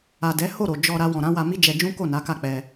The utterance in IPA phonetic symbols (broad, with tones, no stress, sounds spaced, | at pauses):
a˨ d ɛ˨˦ h o˦˨ ɾ o˨ d͡ʒ ɔ˧ ɾ a˧ w ɔ̃˨ ɾ ã˨˦ w a˧ m i˦ d͡ʒ ɛ˧ d͡ʒ ũ˦ k o˦˨ n a˨˦ k a˦˨ k͡p ɛ˧